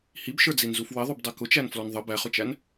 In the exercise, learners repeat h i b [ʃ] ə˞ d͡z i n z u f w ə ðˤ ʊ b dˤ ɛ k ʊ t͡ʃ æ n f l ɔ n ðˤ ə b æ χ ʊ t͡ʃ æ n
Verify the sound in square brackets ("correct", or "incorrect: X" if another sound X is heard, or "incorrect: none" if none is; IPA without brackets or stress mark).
correct